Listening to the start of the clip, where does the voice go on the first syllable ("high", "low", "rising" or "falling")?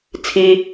low